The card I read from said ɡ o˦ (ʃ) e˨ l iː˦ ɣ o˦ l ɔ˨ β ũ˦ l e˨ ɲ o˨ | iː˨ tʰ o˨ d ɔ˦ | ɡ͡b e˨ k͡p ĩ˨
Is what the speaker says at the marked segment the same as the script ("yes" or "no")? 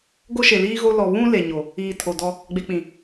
yes